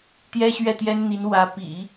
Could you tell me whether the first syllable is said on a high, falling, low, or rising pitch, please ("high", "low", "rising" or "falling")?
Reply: high